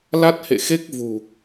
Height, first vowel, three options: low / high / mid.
low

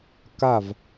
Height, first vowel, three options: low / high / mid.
low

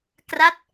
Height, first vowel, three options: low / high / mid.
low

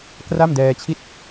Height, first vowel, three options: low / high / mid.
low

